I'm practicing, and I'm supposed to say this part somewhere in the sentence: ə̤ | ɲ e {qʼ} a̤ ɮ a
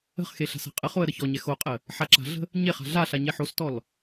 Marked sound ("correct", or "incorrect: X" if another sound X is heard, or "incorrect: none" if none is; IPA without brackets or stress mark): incorrect: χ